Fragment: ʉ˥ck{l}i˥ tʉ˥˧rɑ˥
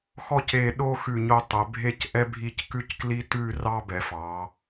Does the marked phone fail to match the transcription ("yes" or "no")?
no